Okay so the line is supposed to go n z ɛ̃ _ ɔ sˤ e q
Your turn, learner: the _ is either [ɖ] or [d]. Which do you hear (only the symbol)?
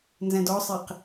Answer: d